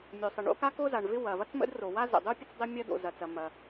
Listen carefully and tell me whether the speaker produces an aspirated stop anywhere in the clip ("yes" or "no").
no